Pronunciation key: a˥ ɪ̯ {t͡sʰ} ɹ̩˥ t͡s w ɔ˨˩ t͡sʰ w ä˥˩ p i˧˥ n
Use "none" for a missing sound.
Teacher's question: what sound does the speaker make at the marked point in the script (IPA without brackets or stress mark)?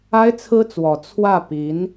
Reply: t͡sʰ